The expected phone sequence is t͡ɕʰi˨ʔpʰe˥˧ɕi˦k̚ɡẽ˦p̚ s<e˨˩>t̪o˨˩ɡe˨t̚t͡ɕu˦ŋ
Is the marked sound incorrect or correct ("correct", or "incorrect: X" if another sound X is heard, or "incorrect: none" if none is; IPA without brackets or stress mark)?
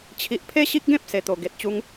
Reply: correct